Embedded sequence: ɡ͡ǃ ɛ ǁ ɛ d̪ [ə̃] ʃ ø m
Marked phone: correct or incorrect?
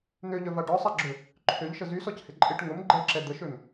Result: incorrect